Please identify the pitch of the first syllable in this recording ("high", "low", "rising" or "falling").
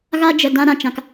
high